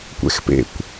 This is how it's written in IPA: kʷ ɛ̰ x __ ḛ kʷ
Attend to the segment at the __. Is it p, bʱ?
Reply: p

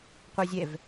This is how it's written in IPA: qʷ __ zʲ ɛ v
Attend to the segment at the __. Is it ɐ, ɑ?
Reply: ɑ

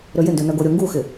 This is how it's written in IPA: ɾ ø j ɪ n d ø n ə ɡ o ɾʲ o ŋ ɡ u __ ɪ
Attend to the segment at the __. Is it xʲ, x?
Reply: x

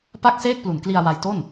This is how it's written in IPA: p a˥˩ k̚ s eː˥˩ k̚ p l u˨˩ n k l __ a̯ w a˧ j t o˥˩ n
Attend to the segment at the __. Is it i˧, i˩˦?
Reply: i˧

